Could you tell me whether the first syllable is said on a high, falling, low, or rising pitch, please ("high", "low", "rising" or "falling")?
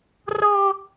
high